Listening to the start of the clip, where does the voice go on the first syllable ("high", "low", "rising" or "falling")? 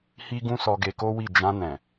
high